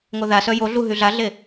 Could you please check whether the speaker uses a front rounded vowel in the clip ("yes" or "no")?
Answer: yes